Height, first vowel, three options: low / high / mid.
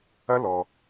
low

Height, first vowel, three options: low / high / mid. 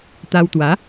low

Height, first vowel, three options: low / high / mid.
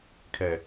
mid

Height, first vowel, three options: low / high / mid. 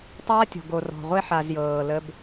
low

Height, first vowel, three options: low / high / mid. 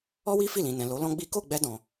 mid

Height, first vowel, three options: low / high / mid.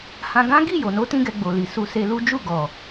low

